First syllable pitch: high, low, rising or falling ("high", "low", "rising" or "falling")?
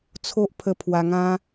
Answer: high